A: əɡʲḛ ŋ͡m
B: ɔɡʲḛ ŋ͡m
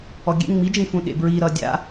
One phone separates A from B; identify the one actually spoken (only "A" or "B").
B